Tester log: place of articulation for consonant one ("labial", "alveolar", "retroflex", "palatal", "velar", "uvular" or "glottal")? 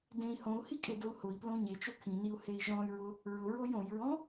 alveolar